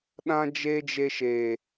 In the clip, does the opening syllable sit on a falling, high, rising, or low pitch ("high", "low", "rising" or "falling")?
high